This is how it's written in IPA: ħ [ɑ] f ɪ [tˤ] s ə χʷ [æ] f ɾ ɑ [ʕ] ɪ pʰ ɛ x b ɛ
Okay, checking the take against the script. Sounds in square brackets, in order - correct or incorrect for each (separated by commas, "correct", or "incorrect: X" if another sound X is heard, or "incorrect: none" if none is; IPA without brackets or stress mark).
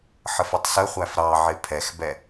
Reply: incorrect: ə, correct, correct, correct